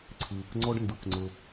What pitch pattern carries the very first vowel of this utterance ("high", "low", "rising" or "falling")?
low